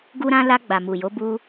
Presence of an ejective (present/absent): absent